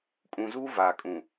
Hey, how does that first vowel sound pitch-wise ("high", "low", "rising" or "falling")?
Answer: low